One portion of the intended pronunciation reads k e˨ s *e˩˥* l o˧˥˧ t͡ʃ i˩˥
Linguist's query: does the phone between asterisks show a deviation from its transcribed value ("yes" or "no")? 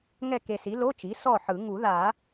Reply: yes